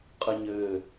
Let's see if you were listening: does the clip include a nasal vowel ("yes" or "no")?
no